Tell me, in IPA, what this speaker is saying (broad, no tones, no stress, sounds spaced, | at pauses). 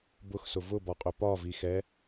b ʊ x s ʊ v ʊ b ɒ qʼ ʏ p ɒ v i x ɛ